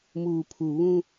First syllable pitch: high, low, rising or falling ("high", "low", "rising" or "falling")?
low